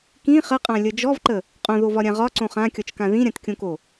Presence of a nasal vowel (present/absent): present